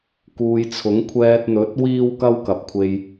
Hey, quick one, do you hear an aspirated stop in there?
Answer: yes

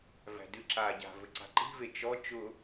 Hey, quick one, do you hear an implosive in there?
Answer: no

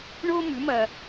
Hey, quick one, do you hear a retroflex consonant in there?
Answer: yes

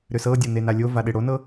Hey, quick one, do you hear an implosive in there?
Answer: yes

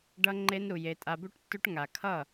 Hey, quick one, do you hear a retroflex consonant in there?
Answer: yes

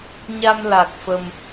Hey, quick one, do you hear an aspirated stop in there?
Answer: no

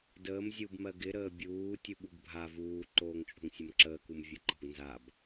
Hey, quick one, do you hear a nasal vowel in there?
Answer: no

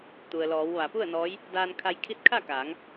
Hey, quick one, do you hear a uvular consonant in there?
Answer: no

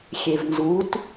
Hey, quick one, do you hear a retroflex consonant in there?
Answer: no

